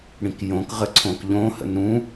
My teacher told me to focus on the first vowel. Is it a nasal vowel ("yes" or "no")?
yes